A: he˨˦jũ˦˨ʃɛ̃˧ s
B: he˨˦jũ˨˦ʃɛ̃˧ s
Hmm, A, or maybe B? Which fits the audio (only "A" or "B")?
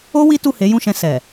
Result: A